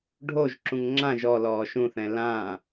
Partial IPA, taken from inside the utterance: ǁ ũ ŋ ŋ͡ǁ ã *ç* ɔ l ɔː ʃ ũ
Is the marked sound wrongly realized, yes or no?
yes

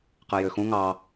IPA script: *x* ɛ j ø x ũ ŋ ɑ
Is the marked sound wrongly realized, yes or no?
yes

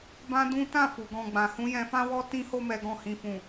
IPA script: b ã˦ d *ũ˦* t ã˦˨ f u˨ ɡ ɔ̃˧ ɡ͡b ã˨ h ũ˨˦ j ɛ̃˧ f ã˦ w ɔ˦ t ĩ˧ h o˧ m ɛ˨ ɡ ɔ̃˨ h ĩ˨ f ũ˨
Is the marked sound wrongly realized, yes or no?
no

